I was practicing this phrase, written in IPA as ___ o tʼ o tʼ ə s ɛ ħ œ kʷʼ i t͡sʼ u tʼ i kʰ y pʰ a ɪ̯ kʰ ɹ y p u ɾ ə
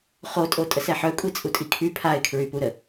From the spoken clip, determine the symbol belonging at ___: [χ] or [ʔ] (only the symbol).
χ